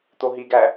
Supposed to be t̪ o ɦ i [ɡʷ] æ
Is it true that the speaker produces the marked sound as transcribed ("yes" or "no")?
no